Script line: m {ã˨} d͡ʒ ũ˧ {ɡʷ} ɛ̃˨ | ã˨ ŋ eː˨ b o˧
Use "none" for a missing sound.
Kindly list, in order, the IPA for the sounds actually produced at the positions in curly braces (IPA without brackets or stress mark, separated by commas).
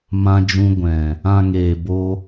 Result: ã˧, ɡʷ